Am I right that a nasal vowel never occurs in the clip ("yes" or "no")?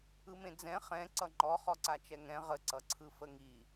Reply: no